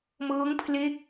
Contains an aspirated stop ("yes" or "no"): yes